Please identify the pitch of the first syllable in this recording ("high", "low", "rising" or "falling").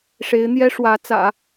rising